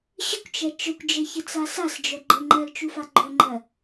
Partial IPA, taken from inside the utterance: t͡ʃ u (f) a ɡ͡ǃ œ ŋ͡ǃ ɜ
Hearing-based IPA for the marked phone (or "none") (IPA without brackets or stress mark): f